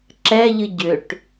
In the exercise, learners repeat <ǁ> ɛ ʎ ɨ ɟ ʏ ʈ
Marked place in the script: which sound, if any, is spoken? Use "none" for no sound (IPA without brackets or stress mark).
ǁ